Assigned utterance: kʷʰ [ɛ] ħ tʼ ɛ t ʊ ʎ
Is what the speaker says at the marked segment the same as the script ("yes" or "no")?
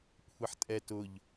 yes